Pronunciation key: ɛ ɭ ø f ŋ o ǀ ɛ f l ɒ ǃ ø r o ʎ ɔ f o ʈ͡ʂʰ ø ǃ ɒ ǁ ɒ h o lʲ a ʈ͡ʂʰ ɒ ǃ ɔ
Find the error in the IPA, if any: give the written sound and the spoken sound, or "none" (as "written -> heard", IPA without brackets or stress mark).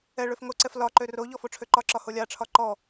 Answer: none